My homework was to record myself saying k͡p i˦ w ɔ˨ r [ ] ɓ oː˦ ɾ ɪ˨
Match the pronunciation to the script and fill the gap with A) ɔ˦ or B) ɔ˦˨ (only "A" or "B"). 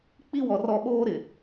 B